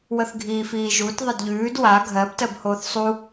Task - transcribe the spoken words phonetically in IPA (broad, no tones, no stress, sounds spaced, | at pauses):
w ə θ ɡʱ iː f iː ʒ u t ðˤ ə d ʎ ʉː d w a ɡʱ ɜ b t ɜ b h oː θ sˤ u